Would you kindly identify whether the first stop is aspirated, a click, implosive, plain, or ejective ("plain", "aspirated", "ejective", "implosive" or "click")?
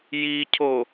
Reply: aspirated